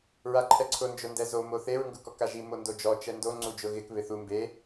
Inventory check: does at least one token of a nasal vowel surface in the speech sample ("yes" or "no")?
no